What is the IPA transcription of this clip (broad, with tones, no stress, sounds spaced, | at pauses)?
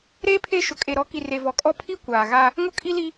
ɾ eː˦ pʰ e˦˨ ʃ ʊ˨ kʼ e˨ ɾ ɔ˨˦ k i˨ r e˨ v ɔ˨ kʼ ɔ˦ pʰ i˦ kʷ aː˨ ɣ a˦ | ŋ ʊ˦ kʼ i˦ l i˦